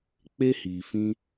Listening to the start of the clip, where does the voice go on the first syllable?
high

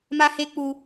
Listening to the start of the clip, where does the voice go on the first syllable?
high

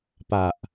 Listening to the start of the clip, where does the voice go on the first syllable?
low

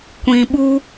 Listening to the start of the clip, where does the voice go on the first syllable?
low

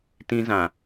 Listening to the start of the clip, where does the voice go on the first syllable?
high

